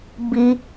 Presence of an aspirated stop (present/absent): absent